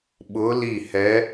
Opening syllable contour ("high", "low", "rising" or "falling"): rising